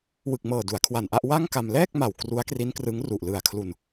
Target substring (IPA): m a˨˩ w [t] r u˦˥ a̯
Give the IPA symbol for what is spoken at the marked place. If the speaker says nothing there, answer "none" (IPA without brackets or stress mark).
k